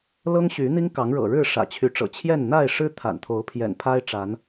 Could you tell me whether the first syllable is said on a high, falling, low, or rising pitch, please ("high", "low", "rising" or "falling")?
high